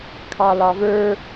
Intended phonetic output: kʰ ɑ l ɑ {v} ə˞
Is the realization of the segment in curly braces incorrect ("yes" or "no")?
no